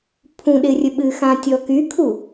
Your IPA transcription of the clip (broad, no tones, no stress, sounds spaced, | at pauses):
pʰ ũ ɗ ɪ rʲ ɵ ɓ ɨ x ã tʲ ɔ k y kʰ u